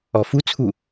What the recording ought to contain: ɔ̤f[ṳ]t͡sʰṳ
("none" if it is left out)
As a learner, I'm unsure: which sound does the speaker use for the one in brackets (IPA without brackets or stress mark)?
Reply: ṳ